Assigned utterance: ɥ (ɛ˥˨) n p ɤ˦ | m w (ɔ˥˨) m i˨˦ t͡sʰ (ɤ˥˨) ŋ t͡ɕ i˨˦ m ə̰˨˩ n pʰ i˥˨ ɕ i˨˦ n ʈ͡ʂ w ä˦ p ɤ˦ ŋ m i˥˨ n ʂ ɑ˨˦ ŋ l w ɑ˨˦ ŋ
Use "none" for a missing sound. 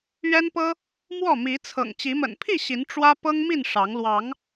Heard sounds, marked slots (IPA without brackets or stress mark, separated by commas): ɛ˦, ɔ˥˨, ɤ̰˨˩